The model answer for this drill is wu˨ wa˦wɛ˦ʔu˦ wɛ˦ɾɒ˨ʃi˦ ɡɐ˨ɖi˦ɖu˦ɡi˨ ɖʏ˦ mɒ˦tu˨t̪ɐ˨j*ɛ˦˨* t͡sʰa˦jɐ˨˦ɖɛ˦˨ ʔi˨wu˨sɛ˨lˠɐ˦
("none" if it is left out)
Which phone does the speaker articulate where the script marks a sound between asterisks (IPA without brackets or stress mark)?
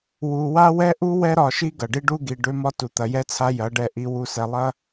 ɛ˦